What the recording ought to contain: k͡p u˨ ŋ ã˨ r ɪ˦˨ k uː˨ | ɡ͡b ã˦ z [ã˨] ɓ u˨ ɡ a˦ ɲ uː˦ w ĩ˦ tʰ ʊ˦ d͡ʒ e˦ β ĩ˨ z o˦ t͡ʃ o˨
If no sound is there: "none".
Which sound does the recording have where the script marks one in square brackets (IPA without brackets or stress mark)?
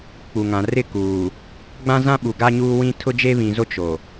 ã˦